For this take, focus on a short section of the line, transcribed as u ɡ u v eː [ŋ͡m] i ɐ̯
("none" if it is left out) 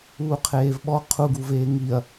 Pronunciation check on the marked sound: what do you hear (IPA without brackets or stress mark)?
ŋ